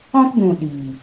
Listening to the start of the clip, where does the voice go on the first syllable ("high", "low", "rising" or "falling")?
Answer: high